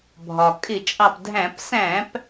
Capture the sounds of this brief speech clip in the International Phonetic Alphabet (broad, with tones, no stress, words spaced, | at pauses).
bʱɒ˩ kʼɪ˧˩˧t͡ʃʼɑ˧˩pdʱæ̃˧˩˧p sæ̃˧˩˧p